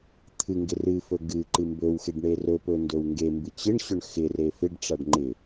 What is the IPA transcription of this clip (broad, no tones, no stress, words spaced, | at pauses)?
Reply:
t̪ʰɨŋɡɪ rɨfɵ ɡɨǃɨ mbɵwxeɖ ɳerɵpɵ ndɵwŋɡembɨ t͡ɕɪɳɕɵɳ xɪre fɪɖʈ͡ʂaɖ ŋ͡ǃɪ